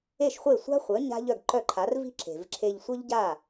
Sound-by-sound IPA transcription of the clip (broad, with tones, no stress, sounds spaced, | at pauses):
e˥˩ ʃ χʷ e˥˩ sʷ a̤˥ χʷ œ˩˥ ɲ a̤˥ ʎ œ˥˩ ɡ ǃ œ˥˩ ǃʰ a˩˥ r v i̤˥ ǁ e̤˩ v ǁʰ e˧ ʎ sʷ œ˥ ʎ ɟ a˥˩